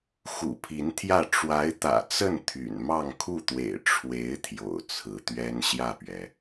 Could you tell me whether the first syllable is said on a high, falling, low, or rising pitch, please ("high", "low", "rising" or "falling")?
low